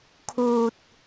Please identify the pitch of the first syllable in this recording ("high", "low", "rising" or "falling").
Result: low